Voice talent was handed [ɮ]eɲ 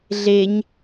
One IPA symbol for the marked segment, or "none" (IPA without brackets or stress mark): ɮ